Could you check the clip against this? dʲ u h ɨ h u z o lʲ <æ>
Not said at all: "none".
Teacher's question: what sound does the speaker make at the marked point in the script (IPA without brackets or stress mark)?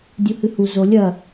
ɐ